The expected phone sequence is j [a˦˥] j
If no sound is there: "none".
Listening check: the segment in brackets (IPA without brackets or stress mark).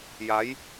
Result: a˦˥